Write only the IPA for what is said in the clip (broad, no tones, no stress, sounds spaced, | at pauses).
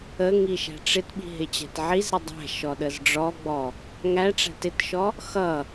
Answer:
ə ŋ i ʃ æ̤ ʈ͡ʂ ɪ t ɓ i̤ ɦ ɪ t͡ɕ æ̤ t ʕ i z ɾ ɪ dˤ æ̤ ʃ ɔ ɗ ə z ɖ͡ʐ ɔ ɡ͡b ɔ | ŋ æ ʈ͡ʂ æ̤ t ɪ t ʃ ɔ | x ʌ